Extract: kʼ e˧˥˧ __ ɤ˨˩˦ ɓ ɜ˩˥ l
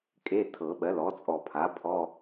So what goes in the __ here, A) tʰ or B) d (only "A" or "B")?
A